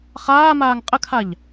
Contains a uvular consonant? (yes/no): yes